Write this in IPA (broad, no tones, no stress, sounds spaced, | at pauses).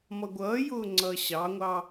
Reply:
m ʌ ɡʷ ʌː j ʊː ŋ͡ǀ ʌː ɕ ɑ ŋʷ ɑ